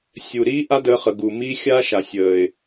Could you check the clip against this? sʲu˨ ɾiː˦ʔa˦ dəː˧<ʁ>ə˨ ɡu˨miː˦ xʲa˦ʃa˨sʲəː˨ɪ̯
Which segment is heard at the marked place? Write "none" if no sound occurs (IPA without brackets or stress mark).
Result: χ